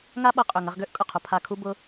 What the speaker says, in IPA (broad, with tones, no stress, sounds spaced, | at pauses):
ŋ a˦ ɓ ɐ˧ qʼ ø˨ ŋ ɐ˧ ʁ ɡ ø˦ ʔ kʼ ʊ˨ qʰ ʊ˧ pʰ a˧ kʰ u˦ b ʊ˦